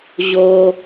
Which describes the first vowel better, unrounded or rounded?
rounded